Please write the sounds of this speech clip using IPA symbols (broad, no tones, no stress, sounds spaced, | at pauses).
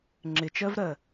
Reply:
ŋ͡ǁ ɪ t͡ʃ ɜ v ɾ ɜ